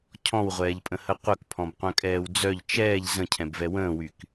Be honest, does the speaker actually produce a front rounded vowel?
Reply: yes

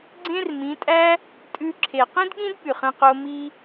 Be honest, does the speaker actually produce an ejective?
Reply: yes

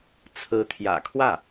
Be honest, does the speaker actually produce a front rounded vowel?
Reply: no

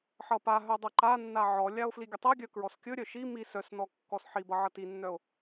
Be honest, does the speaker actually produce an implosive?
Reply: no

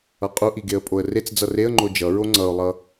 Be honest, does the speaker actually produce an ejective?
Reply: yes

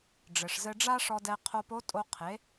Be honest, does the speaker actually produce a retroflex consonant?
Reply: yes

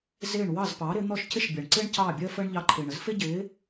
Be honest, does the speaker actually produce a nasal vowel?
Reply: no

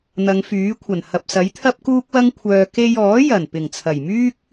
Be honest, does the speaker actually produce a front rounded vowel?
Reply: yes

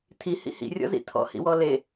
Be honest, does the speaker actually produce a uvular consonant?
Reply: no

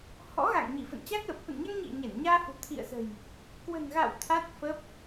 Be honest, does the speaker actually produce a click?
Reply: no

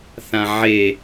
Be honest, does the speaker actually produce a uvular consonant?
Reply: no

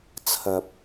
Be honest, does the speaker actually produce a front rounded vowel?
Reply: no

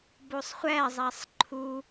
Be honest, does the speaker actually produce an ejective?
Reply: no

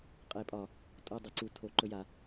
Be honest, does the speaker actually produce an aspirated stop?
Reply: yes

